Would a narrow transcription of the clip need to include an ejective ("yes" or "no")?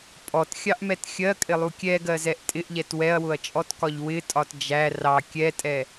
yes